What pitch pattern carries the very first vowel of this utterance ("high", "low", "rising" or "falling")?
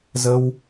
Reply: high